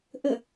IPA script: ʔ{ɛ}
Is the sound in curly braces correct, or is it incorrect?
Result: incorrect